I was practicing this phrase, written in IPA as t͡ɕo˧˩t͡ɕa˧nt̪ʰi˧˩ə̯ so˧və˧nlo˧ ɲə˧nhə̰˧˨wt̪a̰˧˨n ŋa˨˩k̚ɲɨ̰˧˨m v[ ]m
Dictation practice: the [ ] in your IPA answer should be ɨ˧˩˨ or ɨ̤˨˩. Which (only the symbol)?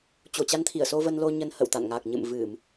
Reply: ɨ˧˩˨